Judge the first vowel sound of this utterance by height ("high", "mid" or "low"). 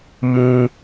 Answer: high